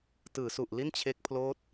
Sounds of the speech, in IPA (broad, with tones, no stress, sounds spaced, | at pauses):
t ɯː˩˦ s u˨˩ ʔ l i˥˩ n t͡ɕʰ e˦˥ k̚ pʰ l oː˦˥ t̚